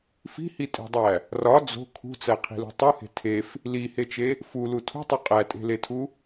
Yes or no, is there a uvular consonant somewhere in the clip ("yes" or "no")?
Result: yes